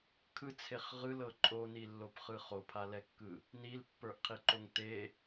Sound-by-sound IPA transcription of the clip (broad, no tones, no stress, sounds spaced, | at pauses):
kʰ ɯ t͡sʰ e χ ʁ ɯ l ɤ ǃʼ o n i lː o p χ ɯ χ o pʰ a l ɛ kː ɯ | n i l pː ə˞ ʔ qʰ i ǃ o ŋ t e